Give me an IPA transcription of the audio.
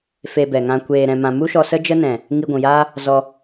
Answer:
f e˧ b ɛ˨ ŋ ã˧ kʷ eː˨ ɾ ɛ̃˨ m ã˨ m u˦ ʃ ɔ˧ s ə˦ d͡ʒ ə˦ n ɛ̃˨ | ŋ i˧ ɡʷ ũ˨ j aː˦ | z ɔ˧

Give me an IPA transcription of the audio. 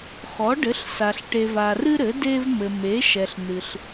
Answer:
x ɔ˩˥ ɖ ɘ˩˥ ɬ s a˨ ɬ ʈ e˨ v a˨ r ɨ˦ ɾ ɘ˩˥ d e˦ v m ɘ˨ m e˩˥ ʃ ɛ˨ ɬ n ɨ˨ ɬ

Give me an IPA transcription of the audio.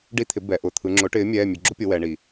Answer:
ɖ i˦ t̪ʰ ɪ˩˥ b ɛ˩˧ ʔ ʊ˩˧˩ t̪ʰ ɯ˩˧ ŋ͡ǁ ʊ˩˥ ʈ ɪː˩˥ mʲ ɛː˩˧˩ mʲ ʉ˩˧ ɡ͡ǁ ʊ˦ pʲ ʊ˩˧ w ɛ˩˧ ɳ i˩

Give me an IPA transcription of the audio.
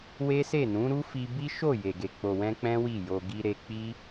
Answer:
w e˦ s e˦˨ n ũ˨˦ ɾ u˦ f i˧ b i˦ ʃ o˦˨ j e˨ ɡ e˨ k͡p o˨ w ɛ̃˧ k͡p ɛ̃˦ w i˦˨ j o˧ ɡ i˧ ɾ e˧ k͡p i˦

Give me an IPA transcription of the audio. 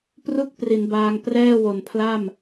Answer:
p r u˦˥ k̚ p r i˩˦ n b aː˧ ŋ p r ɛː˥˩ w o˨˩ n pʰ l a˥˩ m

